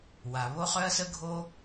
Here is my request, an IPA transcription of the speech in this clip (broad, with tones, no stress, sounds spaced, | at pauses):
w a˩ β o˥ χ œ˥ ɐ̯ s ə˥ ɡʱ o˥